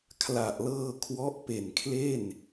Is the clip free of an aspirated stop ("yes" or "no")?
no